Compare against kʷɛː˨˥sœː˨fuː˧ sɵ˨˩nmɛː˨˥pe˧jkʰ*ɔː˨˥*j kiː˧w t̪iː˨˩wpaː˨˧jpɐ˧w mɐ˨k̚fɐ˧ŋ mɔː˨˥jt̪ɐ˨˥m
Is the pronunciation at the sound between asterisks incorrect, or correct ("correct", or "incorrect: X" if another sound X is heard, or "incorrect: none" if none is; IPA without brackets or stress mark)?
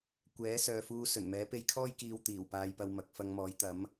incorrect: ɔː˥